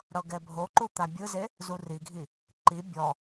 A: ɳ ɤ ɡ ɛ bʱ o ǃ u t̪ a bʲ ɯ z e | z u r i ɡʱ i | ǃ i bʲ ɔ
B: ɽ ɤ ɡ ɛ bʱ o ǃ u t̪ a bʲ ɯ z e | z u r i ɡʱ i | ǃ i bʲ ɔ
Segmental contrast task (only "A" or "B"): B